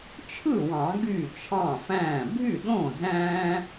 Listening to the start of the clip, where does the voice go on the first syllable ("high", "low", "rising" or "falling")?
falling